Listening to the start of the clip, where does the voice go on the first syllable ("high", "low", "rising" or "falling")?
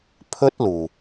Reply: high